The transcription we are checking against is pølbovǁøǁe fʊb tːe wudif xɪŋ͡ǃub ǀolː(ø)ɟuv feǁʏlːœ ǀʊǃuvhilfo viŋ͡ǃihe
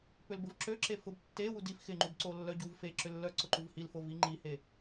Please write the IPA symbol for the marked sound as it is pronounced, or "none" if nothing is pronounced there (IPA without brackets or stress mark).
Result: œ